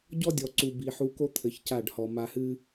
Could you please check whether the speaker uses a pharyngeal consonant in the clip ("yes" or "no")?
yes